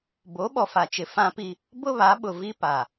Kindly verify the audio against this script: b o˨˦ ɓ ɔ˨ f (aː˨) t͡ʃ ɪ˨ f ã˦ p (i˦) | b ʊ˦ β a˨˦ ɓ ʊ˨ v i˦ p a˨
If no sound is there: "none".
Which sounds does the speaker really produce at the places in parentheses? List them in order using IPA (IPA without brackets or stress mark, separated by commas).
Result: a˨, i˦